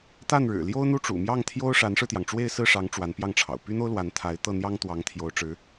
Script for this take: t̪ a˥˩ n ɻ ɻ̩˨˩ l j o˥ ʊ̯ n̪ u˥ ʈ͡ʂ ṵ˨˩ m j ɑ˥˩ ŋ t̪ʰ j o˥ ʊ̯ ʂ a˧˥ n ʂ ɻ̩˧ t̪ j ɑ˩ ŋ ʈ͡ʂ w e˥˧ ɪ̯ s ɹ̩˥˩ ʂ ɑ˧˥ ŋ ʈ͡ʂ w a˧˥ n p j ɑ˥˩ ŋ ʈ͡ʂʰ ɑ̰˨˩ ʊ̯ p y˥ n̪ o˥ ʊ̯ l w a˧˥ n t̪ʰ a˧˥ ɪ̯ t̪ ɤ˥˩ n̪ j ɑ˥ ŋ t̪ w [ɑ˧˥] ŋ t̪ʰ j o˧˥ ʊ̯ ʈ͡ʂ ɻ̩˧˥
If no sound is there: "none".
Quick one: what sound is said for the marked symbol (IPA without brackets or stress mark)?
ɑ˧˥